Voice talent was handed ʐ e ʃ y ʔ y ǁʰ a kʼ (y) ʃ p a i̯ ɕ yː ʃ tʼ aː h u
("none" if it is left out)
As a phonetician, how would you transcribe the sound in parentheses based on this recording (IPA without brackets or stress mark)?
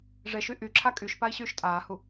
y